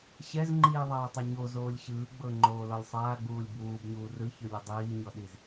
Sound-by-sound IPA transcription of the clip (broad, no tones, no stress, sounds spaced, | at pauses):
ɕ ɛ z ŋ͡ǃ iː ðˤ aː tˤ e ɲ o z oː lʲ ɕ ɯː ɡ͡b ɤ ŋ͡ǃ oː l ɔ lʲ sˤ aː ɡ͡b uː lʲ b uː b ɲ uː r ɯ ç ɯ lʲ ɯ dˤ iː ɲ ɔ ɗ i z